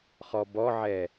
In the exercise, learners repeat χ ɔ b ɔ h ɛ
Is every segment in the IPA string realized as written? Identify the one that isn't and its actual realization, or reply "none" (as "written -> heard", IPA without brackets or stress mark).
h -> ʕ